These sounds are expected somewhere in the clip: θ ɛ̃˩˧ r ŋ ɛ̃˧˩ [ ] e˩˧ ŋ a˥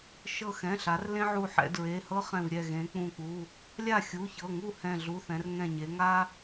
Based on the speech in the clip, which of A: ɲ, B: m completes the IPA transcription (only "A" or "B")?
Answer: A